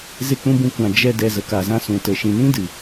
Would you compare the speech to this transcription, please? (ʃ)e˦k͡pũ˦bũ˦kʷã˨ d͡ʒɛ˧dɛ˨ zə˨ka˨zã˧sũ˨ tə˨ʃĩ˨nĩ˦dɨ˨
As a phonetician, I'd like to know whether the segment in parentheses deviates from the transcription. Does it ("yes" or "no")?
yes